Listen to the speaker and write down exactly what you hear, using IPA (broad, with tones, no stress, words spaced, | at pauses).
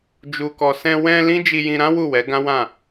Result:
d͡ʒu˨kɔ˨ sɛ̃˧ wɛ̃˧ lĩ˦d͡ʒi˧jĩ˧ɾã˦ wu˦˨wɛ˨˦ ɡã˦wã˦˨